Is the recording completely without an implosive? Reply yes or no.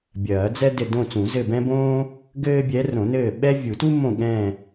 no